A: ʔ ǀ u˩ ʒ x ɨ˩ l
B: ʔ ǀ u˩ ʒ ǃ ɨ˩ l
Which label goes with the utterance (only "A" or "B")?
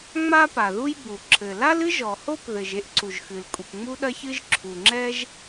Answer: A